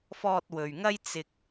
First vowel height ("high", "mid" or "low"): mid